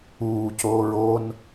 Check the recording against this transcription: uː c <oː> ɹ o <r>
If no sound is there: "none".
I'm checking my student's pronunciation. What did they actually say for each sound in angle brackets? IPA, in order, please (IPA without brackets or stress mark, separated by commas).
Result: oː, n